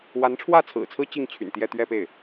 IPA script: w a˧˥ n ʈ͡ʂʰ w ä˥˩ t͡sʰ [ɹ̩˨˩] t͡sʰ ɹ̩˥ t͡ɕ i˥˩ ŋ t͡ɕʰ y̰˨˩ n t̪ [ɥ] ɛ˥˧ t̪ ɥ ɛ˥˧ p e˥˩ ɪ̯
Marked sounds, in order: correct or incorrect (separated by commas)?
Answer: correct, incorrect